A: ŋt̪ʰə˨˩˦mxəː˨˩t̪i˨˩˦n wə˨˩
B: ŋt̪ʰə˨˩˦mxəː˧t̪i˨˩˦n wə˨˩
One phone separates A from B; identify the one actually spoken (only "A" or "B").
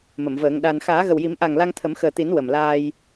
A